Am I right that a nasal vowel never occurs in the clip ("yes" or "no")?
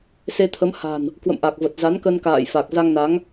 yes